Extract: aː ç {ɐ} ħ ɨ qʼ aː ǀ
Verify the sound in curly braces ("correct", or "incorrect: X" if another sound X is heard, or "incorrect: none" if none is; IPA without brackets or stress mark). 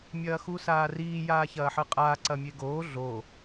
incorrect: ɐː